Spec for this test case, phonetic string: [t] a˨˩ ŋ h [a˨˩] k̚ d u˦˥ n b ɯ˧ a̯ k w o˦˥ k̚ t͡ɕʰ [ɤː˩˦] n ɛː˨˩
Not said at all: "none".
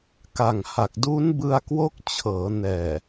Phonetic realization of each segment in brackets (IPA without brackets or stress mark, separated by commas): k, a˨˩, ɤː˩˦